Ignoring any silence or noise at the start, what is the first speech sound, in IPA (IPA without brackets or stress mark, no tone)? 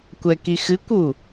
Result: kʷ